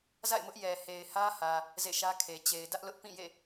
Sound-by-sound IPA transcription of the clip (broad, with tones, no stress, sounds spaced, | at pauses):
z a̰˦˨ ɪ̯ m ʊ˦ ʔ j ɛ˨ h e˨ ɪ̯ h ä˦ h ä˨ | z ḛ˦˨ ʃ ä˦ kʰ e˨ t͡ɕ e˨ ɪ̯ d ä˦ ʔ l ʊ˦ ʔ p ĩ˦˨ j ḛ˦˨